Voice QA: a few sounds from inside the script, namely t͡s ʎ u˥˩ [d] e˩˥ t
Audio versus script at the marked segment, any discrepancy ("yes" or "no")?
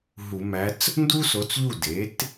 no